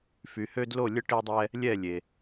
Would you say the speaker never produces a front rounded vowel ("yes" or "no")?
no